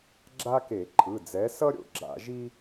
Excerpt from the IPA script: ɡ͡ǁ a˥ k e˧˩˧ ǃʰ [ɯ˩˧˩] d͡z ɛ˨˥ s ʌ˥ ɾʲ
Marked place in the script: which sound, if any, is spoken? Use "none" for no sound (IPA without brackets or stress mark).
ɯ˩˧˩